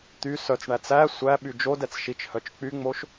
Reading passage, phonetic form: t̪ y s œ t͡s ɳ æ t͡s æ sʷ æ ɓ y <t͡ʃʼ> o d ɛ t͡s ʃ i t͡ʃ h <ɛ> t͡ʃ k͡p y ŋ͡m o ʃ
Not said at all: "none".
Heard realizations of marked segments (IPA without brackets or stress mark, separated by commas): d͡ʒ, œ